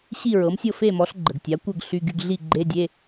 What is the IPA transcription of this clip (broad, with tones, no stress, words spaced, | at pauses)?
ɕi˥˨ ɹɤ˩˥msʲɤ˥˨ fe˥˨mɔ˩˥ɬ ɡ͡ǃə˩ɡtʲa˩˥kʷɤ˥˨ɡ ɬy˧˥˧ɡy˧˥˧ɡ ɮi˥˨ɡ͡ǃe˧˥˧ dʲe˧˥˧